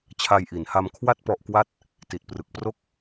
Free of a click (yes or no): yes